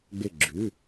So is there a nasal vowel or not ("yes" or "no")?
no